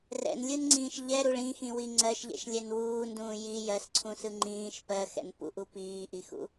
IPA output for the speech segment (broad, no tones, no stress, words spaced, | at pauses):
rɛ̰nlʲɯnŋ͡ǀĩːʃ ʎɛɾuɭ ĩxĩwi ŋ͡ǀɜʃʎɛ̰ʃlʲɛn wuːndũː ji jɜsǀʰũsɯ ŋ͡ǃĩːʃ pɜxɛ̰n pṵʔu piːʔixṵ